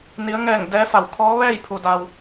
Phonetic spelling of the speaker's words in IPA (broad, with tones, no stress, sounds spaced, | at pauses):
n i˩˧ ə̯ ŋ ɛː˧˩ ŋ d ɛː˧˥ f a˧˩ w kʰ ɔː˧˥ ʋ ɛː˥˨ j pʰ u˩ d a˩ w